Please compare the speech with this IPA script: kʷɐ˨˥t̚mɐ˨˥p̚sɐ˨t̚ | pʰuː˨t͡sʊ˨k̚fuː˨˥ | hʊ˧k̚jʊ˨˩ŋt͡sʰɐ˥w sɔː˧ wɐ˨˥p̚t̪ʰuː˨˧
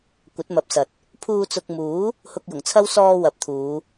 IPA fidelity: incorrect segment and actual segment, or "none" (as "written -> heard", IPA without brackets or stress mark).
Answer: f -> m